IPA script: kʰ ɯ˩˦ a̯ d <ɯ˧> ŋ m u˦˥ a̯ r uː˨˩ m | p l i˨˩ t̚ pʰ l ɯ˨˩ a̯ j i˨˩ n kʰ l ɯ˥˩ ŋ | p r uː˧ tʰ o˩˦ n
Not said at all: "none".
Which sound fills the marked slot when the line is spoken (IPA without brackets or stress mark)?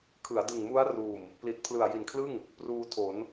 ɯ˨˩